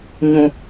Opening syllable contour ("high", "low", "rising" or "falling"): low